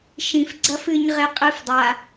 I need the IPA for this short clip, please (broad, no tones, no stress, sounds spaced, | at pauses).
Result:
ʃ ĩ f ɡ͡ǀ ɐ f ɨ ɲ ʁ e qʼ ɨ f dˤ a